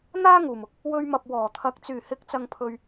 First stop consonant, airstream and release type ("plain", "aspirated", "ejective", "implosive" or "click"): plain